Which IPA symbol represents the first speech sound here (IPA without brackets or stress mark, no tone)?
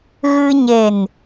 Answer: ɣ